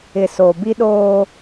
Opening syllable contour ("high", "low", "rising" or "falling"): low